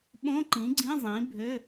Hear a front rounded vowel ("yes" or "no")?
yes